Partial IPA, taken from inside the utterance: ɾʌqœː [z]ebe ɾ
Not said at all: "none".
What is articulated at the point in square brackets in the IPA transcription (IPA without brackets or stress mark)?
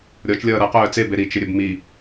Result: t͡s